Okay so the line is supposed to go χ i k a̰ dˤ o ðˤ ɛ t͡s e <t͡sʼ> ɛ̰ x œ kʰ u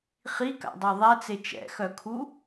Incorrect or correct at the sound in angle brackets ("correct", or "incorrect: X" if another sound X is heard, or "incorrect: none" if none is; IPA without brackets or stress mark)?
incorrect: t͡ʃ